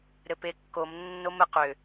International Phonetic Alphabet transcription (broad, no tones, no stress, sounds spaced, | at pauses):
ɾ ɘ p e kː o m nː o m ɘ q ʏ